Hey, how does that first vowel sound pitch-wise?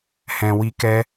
low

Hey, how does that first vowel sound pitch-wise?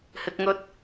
low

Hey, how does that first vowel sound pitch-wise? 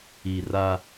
low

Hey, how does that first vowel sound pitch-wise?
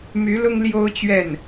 rising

